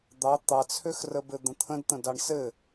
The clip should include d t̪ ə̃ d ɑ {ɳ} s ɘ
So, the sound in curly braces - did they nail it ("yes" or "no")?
yes